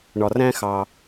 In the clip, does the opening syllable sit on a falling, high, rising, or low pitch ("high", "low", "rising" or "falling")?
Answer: low